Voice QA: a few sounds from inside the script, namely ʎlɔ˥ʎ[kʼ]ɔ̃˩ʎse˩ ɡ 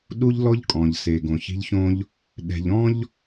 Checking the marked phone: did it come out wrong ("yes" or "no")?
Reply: no